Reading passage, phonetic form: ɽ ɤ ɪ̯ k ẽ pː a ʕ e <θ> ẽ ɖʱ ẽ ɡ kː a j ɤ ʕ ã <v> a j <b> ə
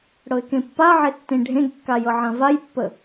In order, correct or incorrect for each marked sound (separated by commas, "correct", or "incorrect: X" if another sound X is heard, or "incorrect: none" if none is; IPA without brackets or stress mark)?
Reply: incorrect: tː, correct, incorrect: pː